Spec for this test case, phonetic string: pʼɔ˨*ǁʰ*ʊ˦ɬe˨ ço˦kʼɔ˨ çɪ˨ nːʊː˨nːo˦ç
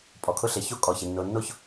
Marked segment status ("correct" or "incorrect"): incorrect